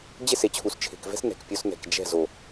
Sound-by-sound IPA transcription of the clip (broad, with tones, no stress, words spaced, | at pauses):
d͡ʑe˦˨se˨t͡ɕʰu˨s t͡ʃʰe̤˨kvɛ̤˦s nɛ̤˨kpʲo˧s nɛ̤˨k d͡ʒɛ̤˦˨ zo˨